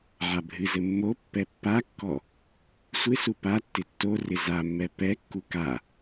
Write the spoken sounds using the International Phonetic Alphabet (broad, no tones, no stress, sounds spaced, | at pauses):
ʕ a bʱ ɨ z ɘ mː o pː ɛ pː a kː ɔ | sʷ ɪ s u p a tː ɪ tː o r ɪ z a mː ɛ p ɛ kː u k a